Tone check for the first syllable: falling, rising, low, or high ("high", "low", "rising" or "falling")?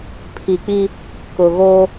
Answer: low